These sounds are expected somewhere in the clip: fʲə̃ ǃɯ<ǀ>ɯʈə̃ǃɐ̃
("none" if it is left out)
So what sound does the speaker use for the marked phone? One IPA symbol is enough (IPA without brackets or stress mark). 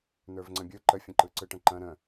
ǀ